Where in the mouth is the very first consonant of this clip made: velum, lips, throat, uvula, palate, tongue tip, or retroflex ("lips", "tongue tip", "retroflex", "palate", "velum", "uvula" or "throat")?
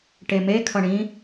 retroflex